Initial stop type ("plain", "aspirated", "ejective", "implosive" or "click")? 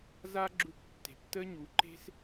click